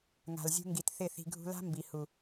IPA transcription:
ŋa̤˨lzʲṳ˧ŋɡi˨t θɪ˦˨θi̤˧ ɡʱṳ˧la̤˦ mbi˨hu˨

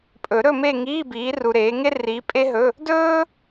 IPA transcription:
pʼɵ˨˩˦ɾɵ˥˧me˥˧ ŋiː˧˥˧biː˨˦ru˨ɾeː˨˦ ŋe˥riː˨˦ pʼe˥ɦɵ˧˥˧ | dɵː˥

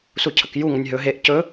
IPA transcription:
sucʰəkju ŋənʲɦɵ ɦeʔ cɵ

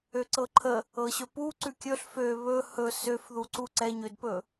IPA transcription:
øǀɤǃʰə | ɤɕɵpu ǀʉkʲɵɬ fø βɵ hɵ søfðuǀu ǀɛɲødpɵ

